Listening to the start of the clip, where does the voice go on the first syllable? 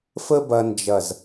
high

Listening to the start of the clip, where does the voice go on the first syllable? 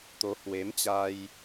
rising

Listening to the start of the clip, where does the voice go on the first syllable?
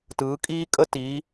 rising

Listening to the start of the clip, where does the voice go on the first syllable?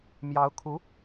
rising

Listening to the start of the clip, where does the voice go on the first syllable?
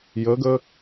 rising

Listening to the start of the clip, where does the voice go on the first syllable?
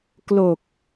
low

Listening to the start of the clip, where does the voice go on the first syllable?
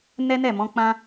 high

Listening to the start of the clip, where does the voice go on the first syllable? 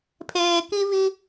low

